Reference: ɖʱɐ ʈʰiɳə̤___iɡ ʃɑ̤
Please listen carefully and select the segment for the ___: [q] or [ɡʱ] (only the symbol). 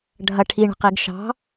q